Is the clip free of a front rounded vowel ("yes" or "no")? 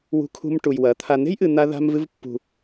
yes